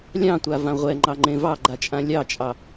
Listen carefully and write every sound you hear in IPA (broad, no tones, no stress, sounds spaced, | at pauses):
lʲ ɑ̃ tʷ a v ã ʁʷ ɛ ŋ͡ǃ ɑ ŋ͡ǃ ẽ v ɑ ɡ͡ǃ a t͡ʃʼ ã lʲ ɑ t͡ʃʼ ɑ